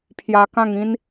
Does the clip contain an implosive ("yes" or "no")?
no